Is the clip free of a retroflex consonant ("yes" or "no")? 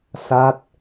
yes